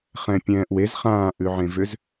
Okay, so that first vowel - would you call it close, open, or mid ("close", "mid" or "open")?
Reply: mid